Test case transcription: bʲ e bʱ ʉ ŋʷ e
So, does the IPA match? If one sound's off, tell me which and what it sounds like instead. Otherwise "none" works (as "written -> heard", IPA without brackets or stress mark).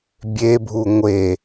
ʉ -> u